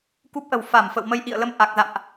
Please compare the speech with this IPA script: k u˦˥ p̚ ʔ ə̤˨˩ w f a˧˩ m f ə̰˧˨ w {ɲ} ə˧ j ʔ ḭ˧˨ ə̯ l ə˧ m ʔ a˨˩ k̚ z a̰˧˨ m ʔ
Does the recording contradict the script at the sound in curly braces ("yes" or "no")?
yes